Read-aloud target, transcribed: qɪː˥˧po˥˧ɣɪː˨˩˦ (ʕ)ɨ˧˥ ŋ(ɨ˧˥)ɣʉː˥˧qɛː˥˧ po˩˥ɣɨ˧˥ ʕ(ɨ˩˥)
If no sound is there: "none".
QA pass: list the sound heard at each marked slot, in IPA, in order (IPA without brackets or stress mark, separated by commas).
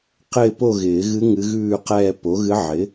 ɣ, ɨ˧˥, ɪ˩˥